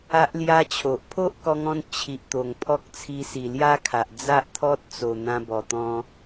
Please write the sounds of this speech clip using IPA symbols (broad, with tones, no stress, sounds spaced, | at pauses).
a˦ ʔ l j a˦ t͡ɕʰ o˨ ʔ pʰ o˦ ʔ k ɔ˧ ŋ ɔ̃˧ n t͡ɕʰ i˨ ʔ t̪ o˨˩ ŋ pʰ ɔ˦ k̚ t͡sʰ i˧ s i˨˩ l j a˦ kʰ a˨ ʔ d͡z a˦ ʔ t̪ʰ ɔ˦ t̚ t͡s o˨˩ n̪ ã˧ b ɔ˨˩ t̪ ɔ̃˧